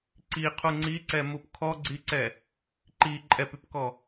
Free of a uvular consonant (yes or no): no